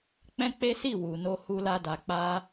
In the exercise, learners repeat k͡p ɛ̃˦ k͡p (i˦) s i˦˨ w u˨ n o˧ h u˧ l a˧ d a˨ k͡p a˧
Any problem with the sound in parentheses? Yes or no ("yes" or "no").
yes